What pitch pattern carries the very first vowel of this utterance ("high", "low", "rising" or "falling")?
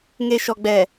low